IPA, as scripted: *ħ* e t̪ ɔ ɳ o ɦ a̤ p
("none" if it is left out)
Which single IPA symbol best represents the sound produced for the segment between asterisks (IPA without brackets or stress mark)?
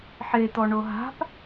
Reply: ħ